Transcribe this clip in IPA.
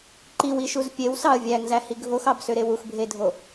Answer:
ǃ i w i ʃ u z pʲ e w s ɑ ə̯ vʲ æ ŋ z æ h i ɡʱ o x ɑ b s ø ɾ e w u x bʱ e dʱ o

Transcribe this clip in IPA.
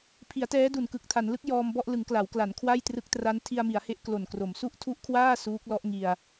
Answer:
pʰ i˩˦ a̯ t ɛː˦˥ d u˨˩ n k ɯ˨˩ k̚ tʰ a˩˦ n l ɯ˦˥ k̚ j ɔː˧ m b ɔ˥˩ ʔ l ɯ˩˦ ŋ k l a˩˦ w k l a˩˦ n kʰ w a˥˩ j t r ɯ˦˥ k̚ t r a˦˥ n tʰ i˧ a̯ m i˩˦ a̯ h e˦˥ ʔ k l o˨˩ n k r o˩˦ m s u˦˥ ʔ tʰ u˦˥ ʔ kʰ w aː˥˩ s uː˦˥ k̚ l ɔ˦˥ ʔ ŋ i˧ a̯

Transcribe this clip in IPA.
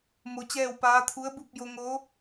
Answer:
m o˧ t͡ɕ ɛː˥˨ w p aː˧˥ t̪ʰ u˧˥ ə̯ b u˥˨ p̚ j o˧ ŋ o˧˥

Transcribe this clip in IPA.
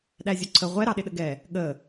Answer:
ɗ æ zʲ ʊ ǀʰ ə ʁʷ ɛ ɾ ɑ ɗ ɪ ɗ ə ɡ ɛ | ɠ ə

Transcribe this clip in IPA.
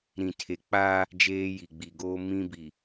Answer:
ɾ ĩ˨ tʰ e˨ k͡p aː˦ | d͡ʒ eː˦ j i˨ ɡ͡b i˨ ɡ oː˦ m ĩ˦ b i˨

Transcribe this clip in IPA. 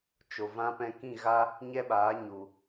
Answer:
t͡ʃ o˨ v ã˧ p ɛ̃˧ k ĩ˦˨ ɣ a˦ | ɲ ɛ˦ ɓ aː˨˦ ɲ u˨

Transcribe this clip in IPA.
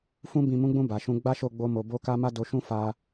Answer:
f ũ˧ b ĩ˨ m ũ˨˦ ɡ͡b ũ˧ b a˨ ʃ ũ˧ ɡ͡b a˦ ʃ o˦˨ ɡ͡b o˧ m o˨ b o˧ k a˧ m a˦ d o˧ ʃ ũ˦ f a˧

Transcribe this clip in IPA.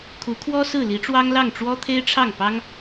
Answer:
kʰ u˧˥ kʰ w ɔ˥ s ɹ̩˥˩ l i˧˥ ʈ͡ʂ w ɑ˥ ŋ l ɑ˥˩ ŋ ʈ͡ʂ w ɔ˥ t̪ʰ e˥ ɪ̯ ʈ͡ʂʰ ɑ˥˩ ŋ p ɑ˥ ŋ

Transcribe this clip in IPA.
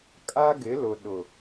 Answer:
kʼ a˦ ɡ ɪ˨˦ l ʊ˨ ɗ ʊ˨

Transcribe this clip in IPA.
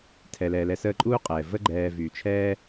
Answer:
tʰ ɛ˩ l ɛː˩ l ɛ˨ s əː˦ ǃʼ uː˥ qʼ ɛː˩ v ə˥ ɡ͡ǃ ɛː˨ v y˩ t͡ʃʰ ɛː˦

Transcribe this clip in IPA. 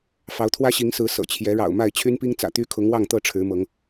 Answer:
f ɑ˨˦ ʊ̯ t̪ʰ w ä˦ ɕ i˨˦ ŋ s ɹ̩˨˦ s ɤ̰˨˩ t͡ɕʰ j ɛ˨˦ ɻ ɑ̰˨˩ ʊ̯ m a˥˨ ɪ̯ t͡ɕʰ y˦ n p i˦ ŋ t͡s ä̰˨˩ t̪ y˦ kʰ ʊ˨˦ ŋ w ɑ˥˨ ŋ t̪ ɤ˥˨ ʈ͡ʂʰ ɻ̩˨˦ m ɤ˨˦ ŋ

